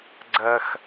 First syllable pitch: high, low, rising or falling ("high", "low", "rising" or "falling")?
high